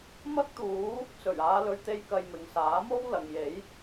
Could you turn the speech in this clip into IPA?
m ɐ˥ k̚ t̪ uː˨˥ | t͡s ɵ˨˩ ɥ aː˨˧ l ɵ˨ ɥ t̪ e˧ j k ɐ˧ j m ɪ˨ ŋ s aː˨˥ m o˥ w l ɐ˨ ŋ j e˨˥ j

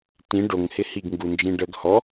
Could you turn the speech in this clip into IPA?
t ĩ ɖ o ŋ h ɪ h i ɡ ŋ ɡ u n d͡ʒ ĩ ɖ ə ɡ h ɔ

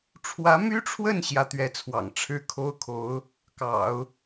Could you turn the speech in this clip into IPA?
ʈ͡ʂʰ w ä˧˥ m y˥ ʈ͡ʂʰ w ə˥˧ n ɕ j ä˥˩ t̪ ɥ ɛ˥ t͡sʰ w ɑ̰˨˩ ŋ ʈ͡ʂʰ ɻ̩˥ kʰ o˥ ʊ̯ kʰ o˧˥ ʊ̯ | k ɑ̰˨˩˦ ʊ̯

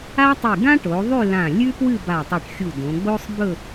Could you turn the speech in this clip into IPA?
a˥ tˤ i˧˩ ɡ ã˥ ʈ o˩˧ ðˤ ʉ˥˧ l ã˧˩ lʲ ʉ˥ p w ɨ˥˧ b a˧˩ tˤ ɨ˧˩ ʈ xʲ u˧˩ d õ˩˧ ɡ͡b o˥ sˤ b ɵ˥˧

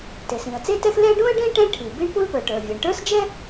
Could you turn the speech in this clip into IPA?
t e˩ s ĩ˩ ə̯ t͡s e˥ t ɛ˥ x l ɛ˥ ɖ ũ˥ ə̯ ɖ ẽ˥ ʈ ɛ̃˥ ʈʰ i˩ b i˥ ɳ p u˥ l p ə˞˩ ʈ ə˞˩ vʲ e˩ ɳ ʈ ə˞˥ s d͡ʒ ɛ˥

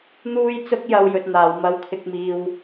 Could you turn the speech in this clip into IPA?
n̪ uː˧ j t͡s ʊ˧ k̚ j ɐ˥ w j ɵ˧ t̚ n̪ aː˨˧ w m ɐ˥ w kʰ ɪ˥ k̚ m iː˥ w

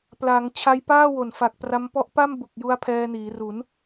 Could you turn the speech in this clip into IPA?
p l a˩˦ ŋ t͡ɕʰ a˧ j p aː˥˩ w o˨˩ n f a˨˩ k̚ p r a˦˥ m p ɔ˥˩ ʔ p a˥˩ m b u˨˩ k̚ j u˦˥ a̯ pʰ ɛː˧ n iː˩˦ r u˩˦ n

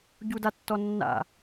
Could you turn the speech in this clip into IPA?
ɟ u d a tː ɔ nː a̰

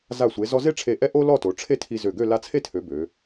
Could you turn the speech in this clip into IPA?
z a˧˩ sʷ e˩˧ z ɔ˧ z e˥ ʈ͡ʂʰ e˧˩ ʔ ɛ˥ ʔ o˥ l ɔ˥˧ t o˩˧ ʈ͡ʂʰ e˥˧ tʰ i˧ z ø˧˩ ɡ ø˥˧ l a˧ t͡sʰ e˥˧ tʰ ø˩˧ b ø˩˧

